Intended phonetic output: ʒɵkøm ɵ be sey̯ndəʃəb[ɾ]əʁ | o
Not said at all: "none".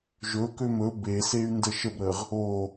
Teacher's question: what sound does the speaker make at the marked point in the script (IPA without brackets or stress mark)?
ɾ